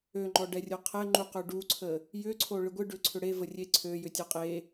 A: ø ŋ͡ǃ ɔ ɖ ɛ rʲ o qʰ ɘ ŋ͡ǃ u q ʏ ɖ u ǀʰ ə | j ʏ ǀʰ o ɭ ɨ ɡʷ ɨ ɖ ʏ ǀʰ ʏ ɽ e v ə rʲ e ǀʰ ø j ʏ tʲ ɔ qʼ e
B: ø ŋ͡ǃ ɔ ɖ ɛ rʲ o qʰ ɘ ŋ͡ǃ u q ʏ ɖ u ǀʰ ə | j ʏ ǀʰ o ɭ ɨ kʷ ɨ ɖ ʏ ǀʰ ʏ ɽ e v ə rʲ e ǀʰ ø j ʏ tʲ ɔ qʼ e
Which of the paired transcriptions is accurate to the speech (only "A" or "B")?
A